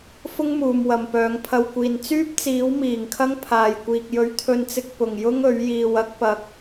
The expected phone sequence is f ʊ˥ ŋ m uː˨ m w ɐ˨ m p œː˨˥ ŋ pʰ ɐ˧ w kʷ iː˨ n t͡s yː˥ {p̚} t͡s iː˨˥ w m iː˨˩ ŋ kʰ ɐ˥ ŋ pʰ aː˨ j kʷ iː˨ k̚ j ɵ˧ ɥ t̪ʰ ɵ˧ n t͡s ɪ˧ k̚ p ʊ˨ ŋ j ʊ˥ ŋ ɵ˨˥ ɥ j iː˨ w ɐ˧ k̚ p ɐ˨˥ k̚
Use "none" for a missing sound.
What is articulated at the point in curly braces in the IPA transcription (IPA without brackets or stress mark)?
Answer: p̚